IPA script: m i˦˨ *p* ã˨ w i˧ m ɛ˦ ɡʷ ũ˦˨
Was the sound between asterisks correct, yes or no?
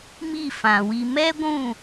no